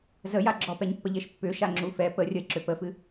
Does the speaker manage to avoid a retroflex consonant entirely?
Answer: yes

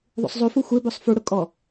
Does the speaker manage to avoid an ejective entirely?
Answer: no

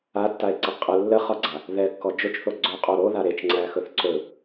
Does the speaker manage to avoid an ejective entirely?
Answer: no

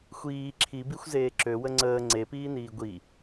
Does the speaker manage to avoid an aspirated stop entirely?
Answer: no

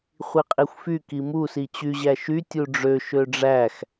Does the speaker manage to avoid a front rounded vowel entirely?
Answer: no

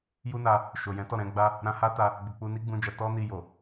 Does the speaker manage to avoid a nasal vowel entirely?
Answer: no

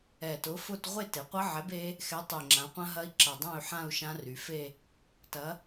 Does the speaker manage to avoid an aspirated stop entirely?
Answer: yes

